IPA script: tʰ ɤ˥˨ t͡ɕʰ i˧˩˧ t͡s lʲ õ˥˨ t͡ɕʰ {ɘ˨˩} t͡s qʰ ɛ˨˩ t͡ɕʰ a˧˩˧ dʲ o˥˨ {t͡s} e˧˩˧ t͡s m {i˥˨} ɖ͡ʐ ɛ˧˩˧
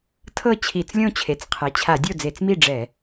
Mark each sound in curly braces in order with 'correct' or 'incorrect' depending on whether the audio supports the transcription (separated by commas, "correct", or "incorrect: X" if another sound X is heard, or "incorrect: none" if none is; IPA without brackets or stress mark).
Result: incorrect: e˨˩, incorrect: d͡z, correct